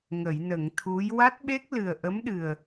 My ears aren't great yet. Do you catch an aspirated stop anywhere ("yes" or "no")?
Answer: yes